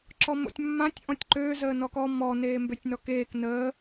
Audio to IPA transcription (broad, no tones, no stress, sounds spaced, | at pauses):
ǁ ɔ m o̰ tʲ mː ã tʲ ʔ ɔ̃ tʲ ǃ øː z əː n ɔ k ɔ m ɔ n eː m b ø tʲ n ɔ k eː k n əː